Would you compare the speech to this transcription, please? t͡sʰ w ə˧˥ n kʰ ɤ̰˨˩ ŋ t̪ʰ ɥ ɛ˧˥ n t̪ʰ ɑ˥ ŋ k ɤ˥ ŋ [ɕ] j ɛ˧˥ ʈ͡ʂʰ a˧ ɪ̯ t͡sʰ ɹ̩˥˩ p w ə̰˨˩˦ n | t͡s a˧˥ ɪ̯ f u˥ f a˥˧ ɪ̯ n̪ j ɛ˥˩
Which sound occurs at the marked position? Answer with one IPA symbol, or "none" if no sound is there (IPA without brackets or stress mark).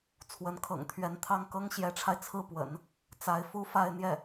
ɕ